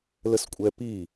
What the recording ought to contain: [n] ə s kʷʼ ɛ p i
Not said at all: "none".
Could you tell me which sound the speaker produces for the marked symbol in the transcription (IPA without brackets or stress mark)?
l